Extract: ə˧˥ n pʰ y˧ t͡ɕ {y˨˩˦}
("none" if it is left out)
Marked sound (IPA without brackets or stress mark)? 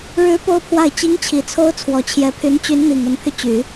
y˨˩˦